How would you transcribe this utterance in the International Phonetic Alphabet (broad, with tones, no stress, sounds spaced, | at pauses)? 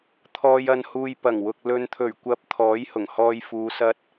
t̪ʰ ɔː˨ j ɐ˨ n h uː˨ j p ɐ˨˩ ŋ w ʊ˨ k̚ l ɵ˨ n t̪ʰ ɵ˨˩ ɥ kʷ ɐ˨˥ p̚ t̪ʰ ɔː˨˥ j h ʊ˨˩ ŋ h ɔː˧ j f uː˨˧ s ɐ˧ t̚